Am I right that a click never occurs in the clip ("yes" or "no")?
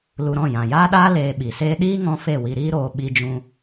yes